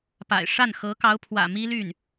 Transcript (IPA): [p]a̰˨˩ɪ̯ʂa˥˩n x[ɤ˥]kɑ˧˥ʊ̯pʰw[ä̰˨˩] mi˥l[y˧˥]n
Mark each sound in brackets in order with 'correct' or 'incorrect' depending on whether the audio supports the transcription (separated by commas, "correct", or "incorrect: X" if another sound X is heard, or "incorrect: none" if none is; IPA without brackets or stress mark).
correct, incorrect: ɤ˧˥, correct, incorrect: y˥˩